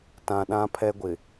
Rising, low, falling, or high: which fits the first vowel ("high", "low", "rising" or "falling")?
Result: low